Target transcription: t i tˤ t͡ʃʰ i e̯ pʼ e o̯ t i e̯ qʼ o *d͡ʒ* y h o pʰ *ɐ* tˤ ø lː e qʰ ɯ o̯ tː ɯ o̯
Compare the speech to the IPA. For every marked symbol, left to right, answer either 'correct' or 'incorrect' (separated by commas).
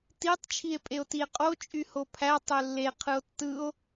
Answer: incorrect, incorrect